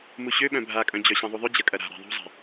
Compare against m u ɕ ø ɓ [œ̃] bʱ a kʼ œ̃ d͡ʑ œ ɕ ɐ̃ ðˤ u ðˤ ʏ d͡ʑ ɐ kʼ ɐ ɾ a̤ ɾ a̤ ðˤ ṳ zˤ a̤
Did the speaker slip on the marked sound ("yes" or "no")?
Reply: no